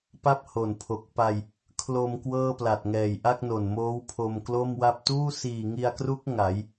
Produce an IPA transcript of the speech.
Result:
pa˥˩p̚ho˨˩npʰo˨˩k̚pa˧j | kʰlo˧m kwɤː˥˩pla˨˩t̚ŋɛː˨˩j ʔa˥˩k̚no˨˩nmoː˦˥w pʰo˧m klo˥˩mwa˥˩p̚ tuː˥˩siː˨˩ŋi˧a̯kru˦˥k̚ ŋa˩˦j

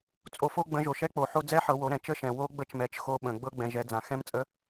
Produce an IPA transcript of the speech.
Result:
t͡sʼo˩fo˧ɡ͡bə̃˩˧ ʒo˩ʃɛ˧˥k͡po˩ħo˧ d͡zɛ˧˥ħɤ˩˧ wo˩˧ɾɛ̃˩t͡ʃə˧˥ʃɛ̃˩ wo˧˥ɡ͡bə˧˥t͡ʃ mɛ˩˧t͡ʃxo˧ ɓə̃˩ɡ͡bɤ˧ ɡ͡bɛ̃˩˧ʒɛ˩˧ d͡zã˩ xɛ̃˧˥mt͡sʼə˧˥

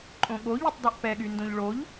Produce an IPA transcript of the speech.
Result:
ǃʼõɠoʎutˤ dɔʔpɛɠy ndõʎɭoʎ

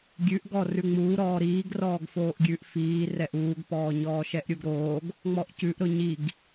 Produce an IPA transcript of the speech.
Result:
ɡʲʉʔɡɔ rʉŋ͡muːɾɔː ɾiːɡ rɔːɡfoːʔɡʲʉʔ fiːrɛʔ uːɡpɔːɲɔː ʃɛʔɾʲuɡɾoːɡ | ŋ͡mɔʔcʉʔɾʊ ɲiɡ

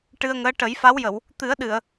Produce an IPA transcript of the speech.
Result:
ʈɨ˧ə̯ŋəː˧˥ ʈə˨˩˦jfa˧˥wjə˨˩˨w | t̪ɨ˨˩˦ə̯ɗɨ˨˩˨ə̯

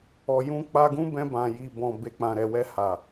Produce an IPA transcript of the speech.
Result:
ɔ˨jũ˧ k͡pa˧ɡũ˦bɛ̃˧ bã˨ji˨ bɔ̃˨be˨ k͡pã˨ɾɛ˨wɛ˧ ha˨

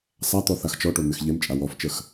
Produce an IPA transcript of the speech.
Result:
sˤat̪ɔ θaxt͡ʃɔʈo n̪ɪxʎemt͡ʃʼa wɔft͡ʃəx

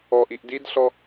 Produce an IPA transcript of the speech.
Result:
ɔʔiʔ didɬɔ

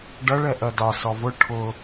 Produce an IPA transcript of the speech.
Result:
ɖʌɭɛ ʔɜdɒ sɔvʊ ʈʰʊ

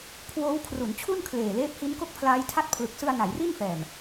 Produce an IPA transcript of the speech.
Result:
kʰwoː˦˥wkʰru˩˦nt͡ɕʰu˥˩n kʰleː˨˩leː˦˥p̚hi˦˥n ko˥˩k̚pʰlaː˦˥jtʰa˥˩t̚ pʰlɯ˨˩k̚sɯ˧a̯ na˩˦jri˥˩nfɛː˨˩m

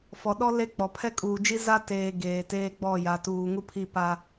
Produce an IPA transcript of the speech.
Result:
fɔ˨ɗɔ˦ le˦k͡pɔ˨ pʰɛ˦kʼuː˨d͡ʒi˦ za˦teː˨ ɡeː˨teː˦ɡ͡bɔ˦˨ ja˨tuː˨ŋu˦pʰi˦˨ pa˦

